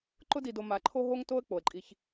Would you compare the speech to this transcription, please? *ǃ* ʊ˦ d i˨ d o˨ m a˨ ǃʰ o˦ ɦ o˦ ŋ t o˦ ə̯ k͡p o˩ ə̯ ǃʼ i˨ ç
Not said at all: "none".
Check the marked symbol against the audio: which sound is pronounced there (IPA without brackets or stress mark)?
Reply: ǃ